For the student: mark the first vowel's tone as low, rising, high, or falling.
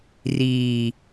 low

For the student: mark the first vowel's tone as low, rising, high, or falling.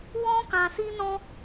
high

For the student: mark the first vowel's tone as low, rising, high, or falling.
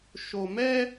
low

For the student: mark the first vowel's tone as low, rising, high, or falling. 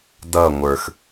falling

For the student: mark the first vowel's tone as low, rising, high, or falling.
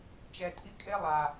low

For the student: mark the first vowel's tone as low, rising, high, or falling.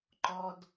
high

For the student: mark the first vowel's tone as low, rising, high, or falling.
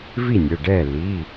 falling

